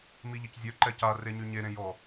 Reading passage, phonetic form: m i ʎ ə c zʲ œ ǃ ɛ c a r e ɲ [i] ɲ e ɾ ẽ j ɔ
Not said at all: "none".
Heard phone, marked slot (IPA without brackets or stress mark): y